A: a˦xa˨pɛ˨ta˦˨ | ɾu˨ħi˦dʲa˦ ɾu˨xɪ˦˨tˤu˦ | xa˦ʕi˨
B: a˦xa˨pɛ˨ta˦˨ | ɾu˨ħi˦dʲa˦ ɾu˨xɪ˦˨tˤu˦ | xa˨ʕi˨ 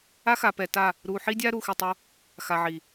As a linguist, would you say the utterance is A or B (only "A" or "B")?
B